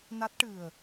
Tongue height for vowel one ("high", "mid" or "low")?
low